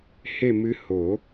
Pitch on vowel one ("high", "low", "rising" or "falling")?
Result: falling